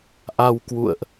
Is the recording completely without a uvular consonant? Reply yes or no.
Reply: yes